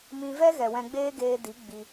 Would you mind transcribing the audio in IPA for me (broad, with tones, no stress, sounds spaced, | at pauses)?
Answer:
m ĩ˧ v ɛ˦ ɣ ɛ˨ w ɛ̃˧ ɡ͡b eː˦ ɡ eː˧ d i˨˦ ɡ͡b i˧